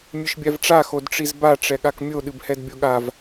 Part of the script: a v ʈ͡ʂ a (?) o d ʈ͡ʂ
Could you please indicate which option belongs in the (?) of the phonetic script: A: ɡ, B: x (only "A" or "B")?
B